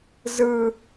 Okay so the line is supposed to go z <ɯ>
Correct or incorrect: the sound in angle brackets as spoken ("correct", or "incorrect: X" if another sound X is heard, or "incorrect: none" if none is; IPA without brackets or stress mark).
correct